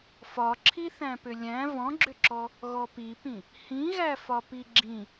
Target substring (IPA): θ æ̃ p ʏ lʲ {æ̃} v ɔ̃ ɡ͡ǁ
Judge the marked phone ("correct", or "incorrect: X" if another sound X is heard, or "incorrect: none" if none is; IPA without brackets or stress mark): correct